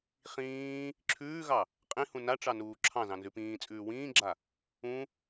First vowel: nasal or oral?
nasal